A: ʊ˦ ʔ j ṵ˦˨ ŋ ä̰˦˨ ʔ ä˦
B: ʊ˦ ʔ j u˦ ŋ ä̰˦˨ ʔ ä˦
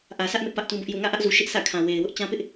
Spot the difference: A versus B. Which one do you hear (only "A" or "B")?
A